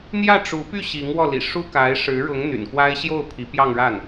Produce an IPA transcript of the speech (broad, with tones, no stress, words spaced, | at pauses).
n̪jä˥˩ʈ͡ʂu˧˥py˥˩ ɕi˧˥ŋ wɔ˥˩lḭ˨˩ʂu˥ ka˧˥ɪ̯ʂɻ̩˧˥ɻʊ˧˥ŋ n̪y̰˨˩nkwa˥ɪ̯ ɕjo˥˩ʊ̯ pʰi˧˥pjɑ˥˧ŋɻa˥˩n